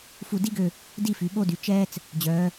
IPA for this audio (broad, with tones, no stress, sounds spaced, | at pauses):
f u˧˩ d i˥ ɡ ø˧˩ | d i˥˧ f y˩˧ ɓ o˥˧ d y˩˧ t͡ʃ ɛː˧ t͡s | d͡ʑ œː˩˧